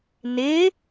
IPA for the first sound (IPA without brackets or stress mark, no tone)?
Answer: n